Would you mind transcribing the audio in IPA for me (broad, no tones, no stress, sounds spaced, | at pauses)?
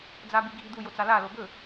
d͡z a b i ɡʱ i d̪ u j o t͡s a l a l o b ɵ